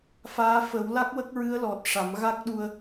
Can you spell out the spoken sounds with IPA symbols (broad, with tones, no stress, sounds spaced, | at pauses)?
f aː˧˥ f ə˨˩˦ w l a˦˥ k̚ w ə˦˥ k̚ ɹ ɨ˧˥ ə̯ l ɔ˨˩ t̚ ʂ a˨˩˦ m ɣ a˦˥ k̚ ɗ u˧ ə̯